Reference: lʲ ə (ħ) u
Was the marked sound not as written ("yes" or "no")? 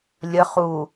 yes